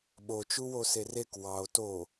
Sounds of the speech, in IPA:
ɓ o t͡ʃ u w o s e r e k w ɑ o̯ t o

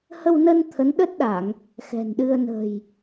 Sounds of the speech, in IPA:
h ə˧ w n ə˧ n t̪ʰ ə˨˦ n ɗ ə˦˥ t̚ ɗ a˧˩˨ ŋ | x ɛ̤˨˩ n ɗ ɨ˧ ə̯ n ə̤˨˩ j

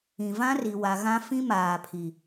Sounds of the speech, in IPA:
ĩ˨ v ã˦ r i˨ w a˨ ɣ ã˦ f ĩ˦ m aː˨ pʰ i˨

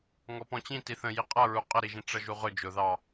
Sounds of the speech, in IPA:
ŋ ɔ p ɔ̃ t͡ɕ ĩ t i θ ə̃ j i qʼ ʌ ɹ u qʼ ə ɾ i ʒ ĩ ʈ͡ʂ ʌ ʒ u ʁ ʊ d͡ʒ ʊ ð ɑ

